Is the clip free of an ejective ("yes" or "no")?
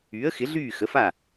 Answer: yes